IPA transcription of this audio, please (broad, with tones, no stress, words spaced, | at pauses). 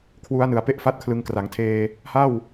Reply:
kʰwu˦˥a̯nɯ˨˩a̯ pe˥˩ʔfa˥˩t̚kʰlɯ˧ŋ kra˩˦ŋtʰeː˧ | ha˥˩w